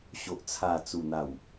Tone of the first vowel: low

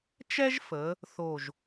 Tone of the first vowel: high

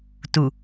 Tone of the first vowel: low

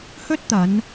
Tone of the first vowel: high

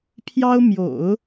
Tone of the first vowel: high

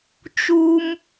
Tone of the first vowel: high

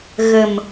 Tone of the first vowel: low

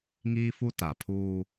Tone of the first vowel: high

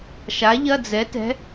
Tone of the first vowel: rising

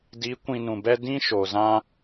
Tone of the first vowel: rising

